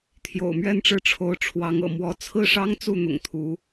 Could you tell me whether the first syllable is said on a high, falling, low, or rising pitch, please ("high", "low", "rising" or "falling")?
low